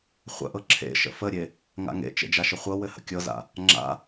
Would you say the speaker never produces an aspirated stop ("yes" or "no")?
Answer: no